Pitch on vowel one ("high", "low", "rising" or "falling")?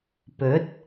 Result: rising